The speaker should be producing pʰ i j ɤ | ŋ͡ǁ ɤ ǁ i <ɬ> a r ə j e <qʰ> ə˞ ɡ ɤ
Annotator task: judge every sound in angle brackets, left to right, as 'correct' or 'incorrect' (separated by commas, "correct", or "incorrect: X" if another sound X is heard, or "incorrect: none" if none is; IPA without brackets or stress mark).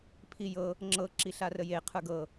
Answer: correct, correct